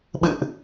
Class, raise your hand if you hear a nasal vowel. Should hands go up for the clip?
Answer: no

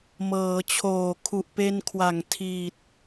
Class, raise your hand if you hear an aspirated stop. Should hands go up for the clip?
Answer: yes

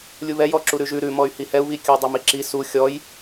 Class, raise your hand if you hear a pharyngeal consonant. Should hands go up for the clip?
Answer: no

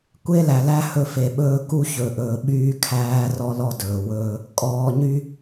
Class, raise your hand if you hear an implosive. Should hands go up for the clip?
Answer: yes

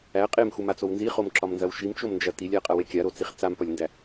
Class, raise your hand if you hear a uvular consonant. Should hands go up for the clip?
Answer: yes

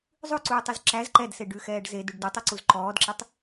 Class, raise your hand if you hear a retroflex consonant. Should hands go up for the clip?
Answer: yes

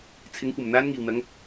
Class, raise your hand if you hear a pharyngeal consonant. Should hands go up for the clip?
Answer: no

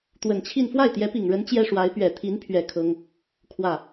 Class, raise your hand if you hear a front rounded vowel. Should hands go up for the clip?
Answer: no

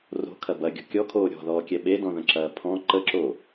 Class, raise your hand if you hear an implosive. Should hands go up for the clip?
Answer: yes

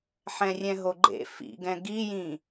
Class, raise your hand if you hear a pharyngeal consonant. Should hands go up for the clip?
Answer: yes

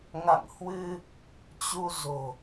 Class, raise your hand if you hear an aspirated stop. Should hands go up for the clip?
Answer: no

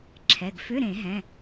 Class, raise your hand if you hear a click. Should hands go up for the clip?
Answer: yes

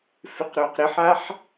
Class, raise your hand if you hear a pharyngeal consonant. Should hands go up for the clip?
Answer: yes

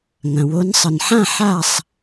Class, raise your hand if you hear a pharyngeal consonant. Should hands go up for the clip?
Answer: yes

